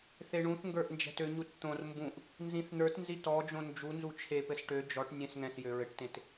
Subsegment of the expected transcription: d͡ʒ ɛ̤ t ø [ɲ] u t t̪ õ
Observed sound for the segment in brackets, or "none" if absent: ɲ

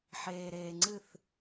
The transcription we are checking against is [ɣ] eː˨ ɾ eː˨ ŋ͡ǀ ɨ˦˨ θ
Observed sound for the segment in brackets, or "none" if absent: ħ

